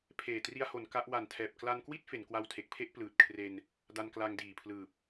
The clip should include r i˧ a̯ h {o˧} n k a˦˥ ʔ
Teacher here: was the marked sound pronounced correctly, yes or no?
no